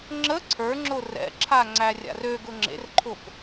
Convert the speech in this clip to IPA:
ŋ͡ǁ ə ǀʰ ə˞ ŋ͡ǁ ʊ r ɛ̰ ǁʰ a ŋ͡ǀ æ rʲ a̰ r ø ɡ ʊ ŋ͡ǁ ḛ r ǃʰ ʊ p

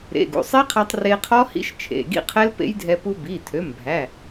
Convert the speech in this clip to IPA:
ɾ ḛ˩˧˩ ɡ ṵ˩˧˩ sˤ e˦˥ qʰ æ˧ tˤ r e˧ qʰ ɔ˦˥ h ḭ˦˥ ʃ t͡ʃʰ ḛ˩˧˩ ɡ ḭ˦˥ qʰ ɛ˦˥ l p ḛ˦˥ j dʱ ɛ˧ p u˧ b i˩˧˩ tʰ ø˩˧˩ m bʱ æ˩˧˩

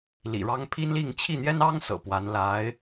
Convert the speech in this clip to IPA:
l ḭ˨˩ ɻ ɑ˥ ŋ pʰ i˥ n l i˥˧ ŋ t͡ɕʰ i˥˩ n̪ j ɛ˥ n ɑ˥ ŋ s ɤ̰˨˩ p w a˧˥ n l a˧˥ ɪ̯

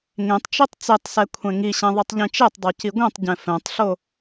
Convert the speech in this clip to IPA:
ŋ ẽ tˤ t͡ʃ i tˤ t͡s e tˤ s ɛ kʷʰ ɛ̃ ŋ i ɕ ɛ̃ ðˤ i tˤ ʎ ĩ t͡ʃ e tˤ dˤ o c i ɡʷ ɛ̃ tˤ ɟ ɛ̃ f ɛ̃ tˤ ɬ o

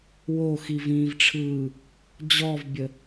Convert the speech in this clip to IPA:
w o x i v ĩː v ʈ͡ʂʰ ɯː | d͡ʑ ɔ v bʲ ə

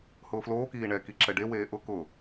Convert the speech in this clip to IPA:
h ʊː f l oː k iː ɳ ɛ k i ǁ ɛ ɖ e w eː ʔ ʊ k ʊ

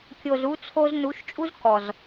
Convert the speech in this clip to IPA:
kʲ o˨ z u˧ t͡sʰ o˧ z n u˨˦ ʃ t͡ʃʼ u˦ z k ɔ˨ z

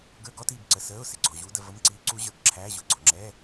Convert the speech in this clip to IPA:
ɡ ə˞˧˥˧ ɡ ɔ˧˥˧ t iː˨ b ǀ ə˨ s əː˧˥˧ ʊ̯ s ɪ˨ ɡ͡ǀ ɔ˨ ʑ uː˧˥ d ə˨ v ə˧˥˧ m ǀ iː˧˥ ǀ u˧˥ ʑ ə˞˨ ɡ ǁʰ æ˧˥˧ ʑ ʊ˨ ɡ͡ǀ ɔ˨ ŋ͡ǁ ɛː˧˥˧

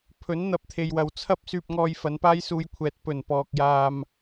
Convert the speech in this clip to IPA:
pʰ ɵ˨˥ n n̪ ɐ˧ p̚ t̪ʰ e˨ j w ɐ˨ w t͡sʰ ɐ˥ p̚ s yː˧ p̚ ŋ ɔː˧ j f ɐ˨˧ n p aː˥ j s uː˧ j kʷʰ ɛː˨ t̚ p ɵ˨˩ n p ɔː˧ k̚ j aː˧ m

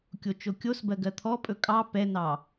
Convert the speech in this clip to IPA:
kʲ o t͡ʃ o kʲ o s b ɜ ɡ ɜ t̪ʰ ɔ pʼ ɵ kʼ ɑ p ɛ n ɑ

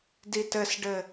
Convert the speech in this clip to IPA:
d i t ɘ s ɖ ɘ

